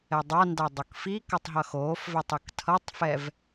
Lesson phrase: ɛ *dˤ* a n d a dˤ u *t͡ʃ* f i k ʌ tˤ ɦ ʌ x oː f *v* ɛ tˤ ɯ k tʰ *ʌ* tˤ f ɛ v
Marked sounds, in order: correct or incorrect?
correct, incorrect: k, correct, correct

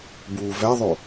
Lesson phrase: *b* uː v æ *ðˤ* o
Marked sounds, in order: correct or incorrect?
correct, correct

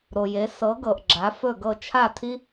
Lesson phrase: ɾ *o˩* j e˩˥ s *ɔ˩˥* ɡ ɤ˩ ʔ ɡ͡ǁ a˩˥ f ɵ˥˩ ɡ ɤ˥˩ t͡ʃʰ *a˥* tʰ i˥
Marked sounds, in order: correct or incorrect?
correct, incorrect: ɤ˩˥, incorrect: a˥˩

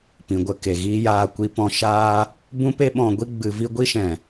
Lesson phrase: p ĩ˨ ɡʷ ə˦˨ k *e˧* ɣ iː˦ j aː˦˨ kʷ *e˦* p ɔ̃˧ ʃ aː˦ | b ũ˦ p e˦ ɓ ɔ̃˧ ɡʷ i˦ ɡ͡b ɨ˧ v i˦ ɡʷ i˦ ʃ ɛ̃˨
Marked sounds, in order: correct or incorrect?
incorrect: e˨, incorrect: i˦

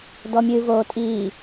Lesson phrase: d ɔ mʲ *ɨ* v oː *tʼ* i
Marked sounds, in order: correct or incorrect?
correct, correct

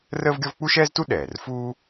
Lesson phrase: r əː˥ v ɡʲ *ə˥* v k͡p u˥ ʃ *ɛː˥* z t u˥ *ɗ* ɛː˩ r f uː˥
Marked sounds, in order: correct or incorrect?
incorrect: ɔ˥, correct, correct

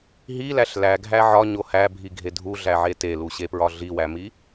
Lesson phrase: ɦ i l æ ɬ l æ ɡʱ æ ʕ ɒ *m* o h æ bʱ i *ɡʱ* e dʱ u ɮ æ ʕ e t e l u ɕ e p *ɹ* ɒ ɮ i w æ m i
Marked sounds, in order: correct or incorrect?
incorrect: ɲ, correct, correct

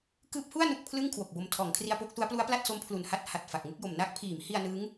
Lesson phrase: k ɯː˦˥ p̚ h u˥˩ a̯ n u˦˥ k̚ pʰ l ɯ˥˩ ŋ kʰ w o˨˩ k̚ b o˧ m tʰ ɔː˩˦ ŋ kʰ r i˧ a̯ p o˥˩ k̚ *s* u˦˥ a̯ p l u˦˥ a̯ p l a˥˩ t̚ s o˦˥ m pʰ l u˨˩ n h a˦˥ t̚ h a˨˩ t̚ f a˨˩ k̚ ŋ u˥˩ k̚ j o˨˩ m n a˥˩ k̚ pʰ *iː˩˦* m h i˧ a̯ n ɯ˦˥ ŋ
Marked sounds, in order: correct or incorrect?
correct, correct

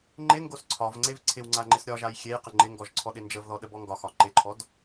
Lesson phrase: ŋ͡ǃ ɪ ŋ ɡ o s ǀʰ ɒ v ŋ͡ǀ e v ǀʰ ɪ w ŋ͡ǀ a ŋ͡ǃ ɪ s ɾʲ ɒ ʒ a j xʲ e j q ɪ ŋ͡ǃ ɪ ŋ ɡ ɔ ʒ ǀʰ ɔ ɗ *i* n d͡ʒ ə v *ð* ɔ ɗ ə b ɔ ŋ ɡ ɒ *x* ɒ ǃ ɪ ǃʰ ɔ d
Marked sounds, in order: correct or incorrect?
incorrect: ɪ, correct, correct

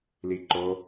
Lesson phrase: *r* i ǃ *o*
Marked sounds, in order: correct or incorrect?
incorrect: l, correct

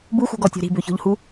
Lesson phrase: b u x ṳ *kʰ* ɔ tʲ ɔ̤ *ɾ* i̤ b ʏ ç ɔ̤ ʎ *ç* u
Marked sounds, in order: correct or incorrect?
incorrect: ɡ, correct, incorrect: h

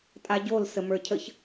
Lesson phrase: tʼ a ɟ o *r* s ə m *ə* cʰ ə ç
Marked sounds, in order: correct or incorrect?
incorrect: l, incorrect: ə˞

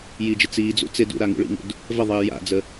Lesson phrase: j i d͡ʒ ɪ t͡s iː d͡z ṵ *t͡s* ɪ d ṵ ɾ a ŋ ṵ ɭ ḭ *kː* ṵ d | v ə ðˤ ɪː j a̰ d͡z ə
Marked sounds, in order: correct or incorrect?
correct, incorrect: ŋ

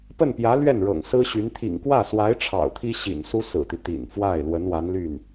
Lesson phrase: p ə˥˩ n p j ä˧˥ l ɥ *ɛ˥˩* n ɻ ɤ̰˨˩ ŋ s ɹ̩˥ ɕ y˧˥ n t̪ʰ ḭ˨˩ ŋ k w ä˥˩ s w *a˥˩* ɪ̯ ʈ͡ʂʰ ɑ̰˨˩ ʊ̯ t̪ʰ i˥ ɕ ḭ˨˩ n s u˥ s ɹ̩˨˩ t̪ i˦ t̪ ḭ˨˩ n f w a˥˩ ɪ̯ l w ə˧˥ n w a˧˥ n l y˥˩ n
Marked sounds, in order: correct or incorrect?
correct, incorrect: a˧˥

